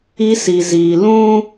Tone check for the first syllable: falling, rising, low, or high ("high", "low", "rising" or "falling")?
high